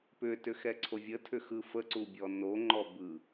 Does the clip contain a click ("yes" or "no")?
yes